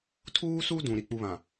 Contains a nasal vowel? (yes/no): yes